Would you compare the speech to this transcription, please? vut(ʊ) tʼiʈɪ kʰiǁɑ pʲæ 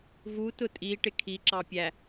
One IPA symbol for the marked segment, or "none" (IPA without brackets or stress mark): ʊ